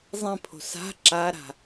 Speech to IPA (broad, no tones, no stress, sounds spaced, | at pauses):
zˤ ẽ pʰ o̤ s a̤ ǁ a ɾ a̤